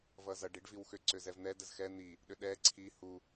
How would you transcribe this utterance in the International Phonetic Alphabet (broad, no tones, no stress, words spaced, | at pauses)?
vʌzʌɖ iɖviwxʏ ǀʏzɛvn̪ɛ dəzxɛ n̪i | ɗʏɗɛ ǀʰi hu